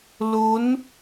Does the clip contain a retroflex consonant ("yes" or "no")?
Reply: no